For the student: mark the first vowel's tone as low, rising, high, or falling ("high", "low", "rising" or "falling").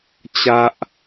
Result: high